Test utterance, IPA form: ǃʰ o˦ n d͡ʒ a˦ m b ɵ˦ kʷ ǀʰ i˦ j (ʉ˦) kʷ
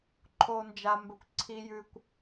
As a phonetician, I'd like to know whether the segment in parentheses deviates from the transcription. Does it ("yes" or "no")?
no